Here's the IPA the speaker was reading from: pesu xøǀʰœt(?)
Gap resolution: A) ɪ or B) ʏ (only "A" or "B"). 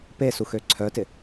A